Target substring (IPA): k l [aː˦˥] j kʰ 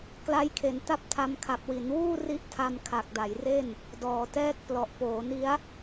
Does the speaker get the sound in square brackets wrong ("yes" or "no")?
yes